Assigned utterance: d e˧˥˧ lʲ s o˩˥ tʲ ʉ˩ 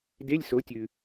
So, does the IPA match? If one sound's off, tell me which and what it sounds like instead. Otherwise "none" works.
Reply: none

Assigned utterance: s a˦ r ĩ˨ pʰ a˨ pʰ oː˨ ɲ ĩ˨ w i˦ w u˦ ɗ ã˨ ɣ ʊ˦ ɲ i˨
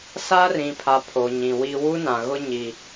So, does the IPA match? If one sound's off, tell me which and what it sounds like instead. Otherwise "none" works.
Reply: ɗ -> n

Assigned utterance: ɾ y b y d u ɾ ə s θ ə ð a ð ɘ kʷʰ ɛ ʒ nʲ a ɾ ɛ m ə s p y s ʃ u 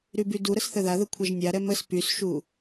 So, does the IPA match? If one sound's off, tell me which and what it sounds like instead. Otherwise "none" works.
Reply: none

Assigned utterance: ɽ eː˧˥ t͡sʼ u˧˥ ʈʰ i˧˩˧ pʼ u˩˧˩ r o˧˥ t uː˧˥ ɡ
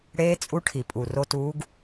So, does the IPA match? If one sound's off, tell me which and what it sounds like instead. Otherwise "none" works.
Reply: none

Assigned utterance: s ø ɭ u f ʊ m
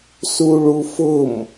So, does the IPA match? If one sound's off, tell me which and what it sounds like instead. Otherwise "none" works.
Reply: ø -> u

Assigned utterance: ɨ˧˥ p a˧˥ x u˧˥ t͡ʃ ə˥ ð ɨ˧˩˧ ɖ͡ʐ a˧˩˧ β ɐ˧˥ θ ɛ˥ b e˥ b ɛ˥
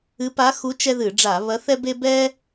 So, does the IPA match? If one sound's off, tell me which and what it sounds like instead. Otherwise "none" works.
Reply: ə˥ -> ɛ˥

